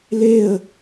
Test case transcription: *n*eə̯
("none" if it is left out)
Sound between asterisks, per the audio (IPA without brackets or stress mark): l